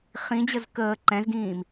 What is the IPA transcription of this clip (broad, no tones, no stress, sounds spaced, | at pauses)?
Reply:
χ ĩ d͡ʑ ə z k əː ǃ ɛ̃ z ɡ ĩː m